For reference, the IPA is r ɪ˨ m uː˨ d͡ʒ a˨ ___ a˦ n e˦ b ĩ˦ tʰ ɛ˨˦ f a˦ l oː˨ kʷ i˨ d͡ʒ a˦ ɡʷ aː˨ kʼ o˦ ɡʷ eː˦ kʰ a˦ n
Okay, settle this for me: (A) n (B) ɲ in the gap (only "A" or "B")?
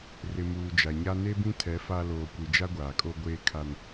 B